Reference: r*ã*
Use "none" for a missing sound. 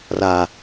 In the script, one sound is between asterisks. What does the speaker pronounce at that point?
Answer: a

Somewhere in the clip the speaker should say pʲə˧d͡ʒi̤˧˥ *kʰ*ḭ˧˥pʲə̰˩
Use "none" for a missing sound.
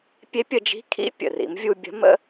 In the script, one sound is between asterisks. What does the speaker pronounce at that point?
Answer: kʰ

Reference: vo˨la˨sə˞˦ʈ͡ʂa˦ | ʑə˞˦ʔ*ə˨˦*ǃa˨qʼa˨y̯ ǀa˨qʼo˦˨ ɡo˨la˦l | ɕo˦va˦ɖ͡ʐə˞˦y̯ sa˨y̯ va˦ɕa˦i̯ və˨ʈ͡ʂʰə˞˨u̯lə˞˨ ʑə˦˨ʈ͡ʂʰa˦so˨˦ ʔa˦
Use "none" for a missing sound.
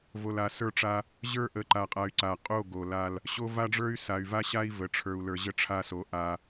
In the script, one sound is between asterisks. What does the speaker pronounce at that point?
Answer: ə˨˦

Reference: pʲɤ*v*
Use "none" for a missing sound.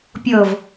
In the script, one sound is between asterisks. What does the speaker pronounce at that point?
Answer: v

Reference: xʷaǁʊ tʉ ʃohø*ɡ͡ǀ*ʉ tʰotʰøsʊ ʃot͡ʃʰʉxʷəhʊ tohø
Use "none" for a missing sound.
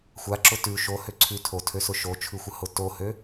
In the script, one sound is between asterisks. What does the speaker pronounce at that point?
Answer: ǀʰ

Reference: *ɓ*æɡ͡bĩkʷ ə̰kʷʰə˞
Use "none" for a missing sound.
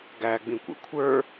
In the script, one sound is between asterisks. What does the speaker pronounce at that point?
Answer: ɡ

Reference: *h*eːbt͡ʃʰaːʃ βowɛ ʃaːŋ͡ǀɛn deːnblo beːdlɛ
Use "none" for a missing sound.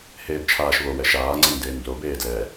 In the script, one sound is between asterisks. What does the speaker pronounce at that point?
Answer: h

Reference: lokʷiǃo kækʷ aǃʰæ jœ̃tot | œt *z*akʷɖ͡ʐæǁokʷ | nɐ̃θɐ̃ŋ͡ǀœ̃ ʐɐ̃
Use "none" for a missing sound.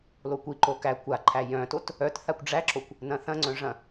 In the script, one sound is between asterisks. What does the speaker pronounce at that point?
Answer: θ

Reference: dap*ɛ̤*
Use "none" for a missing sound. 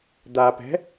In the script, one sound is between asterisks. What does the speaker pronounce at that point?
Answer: ɛ̤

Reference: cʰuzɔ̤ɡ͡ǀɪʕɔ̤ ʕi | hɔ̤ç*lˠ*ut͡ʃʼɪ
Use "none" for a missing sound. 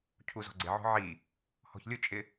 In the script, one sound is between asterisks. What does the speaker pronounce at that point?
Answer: lʲ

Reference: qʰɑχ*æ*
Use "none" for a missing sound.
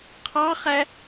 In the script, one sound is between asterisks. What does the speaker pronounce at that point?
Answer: æ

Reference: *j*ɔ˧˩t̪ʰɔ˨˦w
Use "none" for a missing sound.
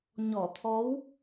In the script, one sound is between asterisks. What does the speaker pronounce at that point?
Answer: ɲ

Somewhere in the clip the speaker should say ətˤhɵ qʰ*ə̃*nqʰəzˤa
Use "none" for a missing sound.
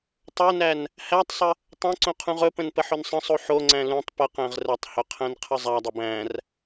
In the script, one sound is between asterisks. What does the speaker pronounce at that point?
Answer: æ̃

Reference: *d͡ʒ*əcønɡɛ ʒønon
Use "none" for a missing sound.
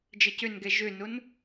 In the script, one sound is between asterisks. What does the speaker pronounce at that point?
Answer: d͡ʒ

